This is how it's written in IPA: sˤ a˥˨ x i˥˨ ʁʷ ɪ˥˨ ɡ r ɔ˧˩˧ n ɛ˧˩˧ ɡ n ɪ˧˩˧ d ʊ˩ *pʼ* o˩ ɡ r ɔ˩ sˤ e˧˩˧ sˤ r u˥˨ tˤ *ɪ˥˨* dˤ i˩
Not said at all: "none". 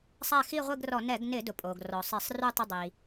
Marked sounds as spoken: pʼ, ɪ˥˨

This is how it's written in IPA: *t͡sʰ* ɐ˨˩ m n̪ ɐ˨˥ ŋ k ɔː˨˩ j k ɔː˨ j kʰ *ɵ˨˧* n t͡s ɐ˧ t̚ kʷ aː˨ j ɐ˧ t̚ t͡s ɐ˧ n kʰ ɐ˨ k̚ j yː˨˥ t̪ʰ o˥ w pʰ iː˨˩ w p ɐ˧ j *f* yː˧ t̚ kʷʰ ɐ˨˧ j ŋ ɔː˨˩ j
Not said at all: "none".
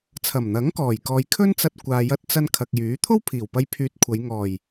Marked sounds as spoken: t͡sʰ, ɵ˥, pʰ

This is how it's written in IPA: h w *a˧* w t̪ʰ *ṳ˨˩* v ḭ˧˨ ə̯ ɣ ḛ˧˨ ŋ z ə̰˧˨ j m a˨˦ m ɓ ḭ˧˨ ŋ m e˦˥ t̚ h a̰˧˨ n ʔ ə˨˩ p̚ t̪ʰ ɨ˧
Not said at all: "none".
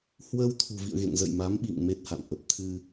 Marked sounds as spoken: ə˧, ṳ˨˩

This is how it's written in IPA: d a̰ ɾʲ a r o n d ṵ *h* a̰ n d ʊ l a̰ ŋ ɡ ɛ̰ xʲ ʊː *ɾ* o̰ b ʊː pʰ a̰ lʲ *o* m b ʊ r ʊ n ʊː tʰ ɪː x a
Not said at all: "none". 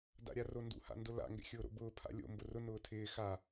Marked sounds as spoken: h, ɾ, o̰

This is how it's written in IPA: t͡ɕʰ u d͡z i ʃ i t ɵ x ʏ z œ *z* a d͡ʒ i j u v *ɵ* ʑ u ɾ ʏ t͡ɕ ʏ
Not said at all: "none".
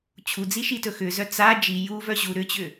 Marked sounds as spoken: t͡s, œ

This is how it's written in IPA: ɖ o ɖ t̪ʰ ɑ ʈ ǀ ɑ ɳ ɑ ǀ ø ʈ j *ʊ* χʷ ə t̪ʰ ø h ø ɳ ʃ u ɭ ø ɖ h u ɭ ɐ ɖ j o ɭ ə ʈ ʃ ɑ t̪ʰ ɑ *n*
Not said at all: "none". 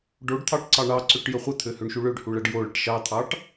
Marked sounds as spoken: ə, ʈ

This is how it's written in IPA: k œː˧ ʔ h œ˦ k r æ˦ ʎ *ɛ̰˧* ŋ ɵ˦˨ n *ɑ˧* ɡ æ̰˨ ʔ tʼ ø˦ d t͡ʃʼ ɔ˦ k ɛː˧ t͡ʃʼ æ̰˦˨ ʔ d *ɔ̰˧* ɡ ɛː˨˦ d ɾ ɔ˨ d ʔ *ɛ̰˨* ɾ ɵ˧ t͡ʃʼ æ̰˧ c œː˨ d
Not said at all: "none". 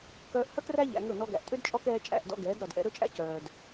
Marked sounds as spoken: æ̰˧, ɔ˧, ɔ̰˧, ɛ̰˧

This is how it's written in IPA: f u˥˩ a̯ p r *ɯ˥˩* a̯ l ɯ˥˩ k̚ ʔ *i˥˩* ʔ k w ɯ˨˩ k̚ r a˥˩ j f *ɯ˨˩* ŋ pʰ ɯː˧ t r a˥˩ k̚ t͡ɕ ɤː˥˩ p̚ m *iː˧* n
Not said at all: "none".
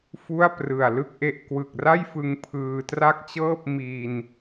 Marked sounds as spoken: ɯ˨˩, e˥˩, ɯ˧, iː˧

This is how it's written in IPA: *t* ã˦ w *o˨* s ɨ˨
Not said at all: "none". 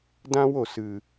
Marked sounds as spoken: d, o˨

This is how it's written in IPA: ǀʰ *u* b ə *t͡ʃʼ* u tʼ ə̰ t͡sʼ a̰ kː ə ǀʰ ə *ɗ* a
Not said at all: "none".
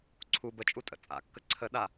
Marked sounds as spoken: u, t͡ʃʼ, ɗ

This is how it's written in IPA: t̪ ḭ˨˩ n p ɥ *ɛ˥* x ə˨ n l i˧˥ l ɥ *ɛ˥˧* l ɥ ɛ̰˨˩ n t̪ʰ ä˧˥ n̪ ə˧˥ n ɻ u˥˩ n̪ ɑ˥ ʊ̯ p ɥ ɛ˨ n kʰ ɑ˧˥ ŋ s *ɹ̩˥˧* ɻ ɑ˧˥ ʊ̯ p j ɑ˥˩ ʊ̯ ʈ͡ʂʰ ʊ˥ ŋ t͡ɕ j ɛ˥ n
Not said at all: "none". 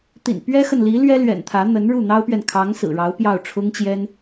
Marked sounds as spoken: ɛ˥, ɛ˥, ɹ̩˨˩

